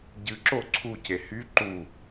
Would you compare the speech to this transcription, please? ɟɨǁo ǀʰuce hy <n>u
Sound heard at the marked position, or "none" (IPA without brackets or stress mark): ǃ